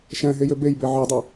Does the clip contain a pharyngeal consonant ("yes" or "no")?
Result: yes